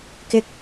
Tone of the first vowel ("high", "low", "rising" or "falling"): high